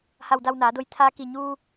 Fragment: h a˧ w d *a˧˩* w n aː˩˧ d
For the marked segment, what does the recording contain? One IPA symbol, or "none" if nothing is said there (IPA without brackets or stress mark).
a˧